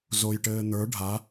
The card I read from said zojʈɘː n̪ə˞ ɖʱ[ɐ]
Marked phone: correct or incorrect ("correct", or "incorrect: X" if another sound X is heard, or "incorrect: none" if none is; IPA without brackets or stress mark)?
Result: incorrect: a